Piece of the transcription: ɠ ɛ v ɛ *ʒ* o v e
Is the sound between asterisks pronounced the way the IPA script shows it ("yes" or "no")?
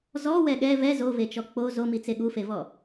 no